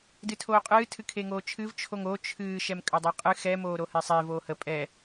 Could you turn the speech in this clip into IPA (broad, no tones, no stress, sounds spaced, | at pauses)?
d ɨ tʰ oː qʼ ɨː tʰ ɨ kʰ e ŋ oː t͡ʃʰ ɨ v t͡ʃʰ o ŋ o t͡ʃʰ ɨː ʃ ɛ m kʼ ə dˤ e qʼ ɨ x ɛ m oː ɾ o h e sˤ e v oː h ə pʼ ɛ